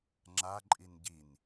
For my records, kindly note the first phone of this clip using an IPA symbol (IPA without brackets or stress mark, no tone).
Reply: ŋ͡ǁ